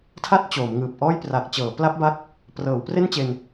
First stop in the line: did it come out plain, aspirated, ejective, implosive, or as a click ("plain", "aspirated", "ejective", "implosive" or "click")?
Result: aspirated